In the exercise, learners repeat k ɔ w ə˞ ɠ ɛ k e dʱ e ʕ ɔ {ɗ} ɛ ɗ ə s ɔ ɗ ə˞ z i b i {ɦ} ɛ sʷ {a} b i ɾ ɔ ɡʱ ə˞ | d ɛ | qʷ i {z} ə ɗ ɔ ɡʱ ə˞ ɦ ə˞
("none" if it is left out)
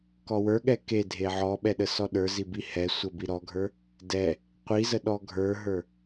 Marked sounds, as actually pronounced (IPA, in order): ɓ, h, ə, z

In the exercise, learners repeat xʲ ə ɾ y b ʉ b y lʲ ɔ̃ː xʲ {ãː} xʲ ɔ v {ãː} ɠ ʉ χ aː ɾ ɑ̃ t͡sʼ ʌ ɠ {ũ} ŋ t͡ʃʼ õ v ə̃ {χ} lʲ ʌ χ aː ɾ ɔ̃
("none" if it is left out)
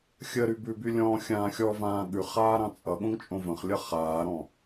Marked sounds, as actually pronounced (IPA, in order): ãː, ãː, õ, χ

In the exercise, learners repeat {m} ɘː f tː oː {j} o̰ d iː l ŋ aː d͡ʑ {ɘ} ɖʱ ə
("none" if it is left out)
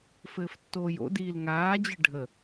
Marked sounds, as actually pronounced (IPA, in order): f, j, ɘ

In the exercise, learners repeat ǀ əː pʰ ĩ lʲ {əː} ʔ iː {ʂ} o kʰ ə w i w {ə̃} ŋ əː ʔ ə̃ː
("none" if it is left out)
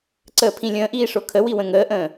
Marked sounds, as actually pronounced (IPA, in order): ə̃ː, ʂ, ə̃

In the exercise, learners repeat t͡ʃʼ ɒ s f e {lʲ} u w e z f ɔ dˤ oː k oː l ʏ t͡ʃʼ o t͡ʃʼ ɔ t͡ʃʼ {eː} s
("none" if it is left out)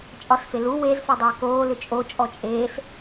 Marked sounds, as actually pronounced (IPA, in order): l, eː

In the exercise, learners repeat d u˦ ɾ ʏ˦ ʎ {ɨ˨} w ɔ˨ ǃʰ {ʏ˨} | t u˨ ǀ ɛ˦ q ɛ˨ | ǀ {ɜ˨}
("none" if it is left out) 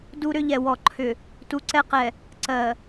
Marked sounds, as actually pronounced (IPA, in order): ɛ˨, ʏ˨, ɜ˨

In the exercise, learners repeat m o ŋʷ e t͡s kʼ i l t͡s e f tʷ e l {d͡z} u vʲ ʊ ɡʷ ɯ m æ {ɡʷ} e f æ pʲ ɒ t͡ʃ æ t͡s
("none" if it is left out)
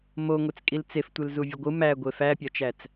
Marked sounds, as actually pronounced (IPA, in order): z, ɡʷ

